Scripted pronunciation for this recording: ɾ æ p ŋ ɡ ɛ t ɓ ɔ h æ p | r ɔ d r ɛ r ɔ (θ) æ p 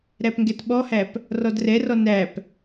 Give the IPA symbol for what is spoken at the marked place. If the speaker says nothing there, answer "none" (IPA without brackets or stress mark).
n